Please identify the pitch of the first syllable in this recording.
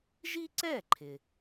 high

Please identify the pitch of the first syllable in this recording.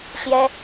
high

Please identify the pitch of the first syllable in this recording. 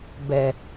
low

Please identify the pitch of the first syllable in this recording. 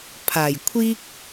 low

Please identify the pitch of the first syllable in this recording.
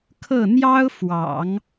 falling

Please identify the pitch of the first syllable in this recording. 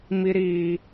high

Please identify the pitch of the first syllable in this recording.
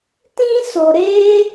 high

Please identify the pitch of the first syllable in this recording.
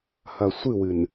low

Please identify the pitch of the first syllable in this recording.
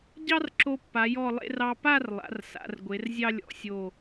high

